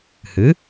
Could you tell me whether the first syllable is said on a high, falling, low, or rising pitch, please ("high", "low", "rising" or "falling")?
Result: rising